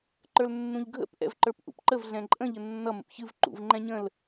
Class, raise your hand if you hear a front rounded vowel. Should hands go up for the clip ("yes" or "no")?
no